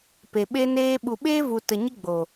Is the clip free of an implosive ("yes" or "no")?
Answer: no